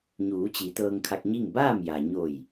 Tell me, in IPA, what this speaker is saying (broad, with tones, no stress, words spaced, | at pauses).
ɲuː˩˧t͡ɕi˩˧ t̪ɤː˧ŋkʰa˧k̚ɲi˥˨ŋ baː˥˨mja˩ ɲo˧˩j